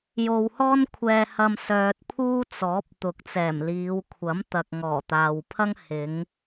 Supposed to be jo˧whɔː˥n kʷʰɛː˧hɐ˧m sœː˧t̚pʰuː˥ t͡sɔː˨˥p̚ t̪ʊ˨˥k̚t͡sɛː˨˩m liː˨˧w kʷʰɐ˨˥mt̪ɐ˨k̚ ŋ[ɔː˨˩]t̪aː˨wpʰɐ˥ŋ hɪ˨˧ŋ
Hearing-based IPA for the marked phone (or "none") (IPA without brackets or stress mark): ɔː˨˩